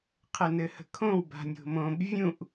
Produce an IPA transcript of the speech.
qʰ ɘ n ɘ h ə̤ kʰ õ w b a̤ nʲ o̤ m õ b vʲ ũ ʔ

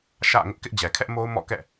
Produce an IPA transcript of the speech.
ʃ ä̰˦˨ ŋ ʊ˦ ʔ k ɪ˦ ʔ d͡ʑ ɛ˨ kʰ ɛ˦ ʔ m o˦ ʊ̯ m ɔ̰˦˨ k ɛ̰˦˨

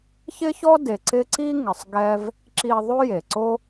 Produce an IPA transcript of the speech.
ç ɪ˥ ç ɔ˥ d e˨ ǀ ɪ˦ ǀ i˥ ŋ ɪ˨ sˤ ɡ ɛ˥ v | ǁ i˦ ðˤ o˥ j e˩ ǀ o˥

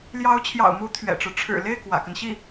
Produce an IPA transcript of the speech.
l j ɑ˧˥ ʊ̯ t͡ɕʰ j ɑ̰˨˩ ʊ̯ m u˧˥ t̪ʰ ɥ ɛ̰˨˩ ʈ͡ʂ ɻ̩˦ ʈ͡ʂʰ ɻ̩˨˩ l e˥˩ ɪ̯ k w ä̰˨˩ k ə˦ n ɕ i˥˩

